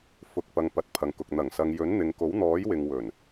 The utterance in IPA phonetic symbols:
f ʊ˨ k̚ p ɐ˨ ŋ p ɐ˨˥ t̚ pʰ ɐ˨ ŋ k ʊ˨ k̚ n̪ ɐ˨˩ ŋ s ɐ˨ ŋ j ɵ˨˥ n n̪ ɪ˨ ŋ k o˨˥ w n̪ ɔː˨˥ j w ɪ˨ ŋ w ɵ˨˩ n

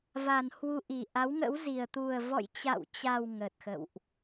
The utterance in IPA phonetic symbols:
v a˨˩ n h w u˧ ʔ i˨˩ ʔ a˨˦ w ŋ ə̰˧˥ w z i˨˩ ə̯ t̪ u˨˩ ə̯ v ɔ̰˧˨ j t͡ɕ a̰˧˨ w t͡ɕ a˨˩ w ŋ ə˨˩ t̚ x ə̰˧˨ w ʔ

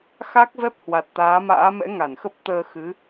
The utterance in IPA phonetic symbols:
x a˦˥ k̚ v ɛ˦˥ p̚ h w a˨˩ t̚ t̪ aː˨˦ m a̰ː˧˥ m ɛ̰˧˥ ŋ a˧˩ n x ə˦˥ p̚ t̪ əː˧ x ɨ˨˦

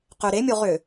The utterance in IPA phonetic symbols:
q ʏ ɾ e mʲ o ʁ ʏ

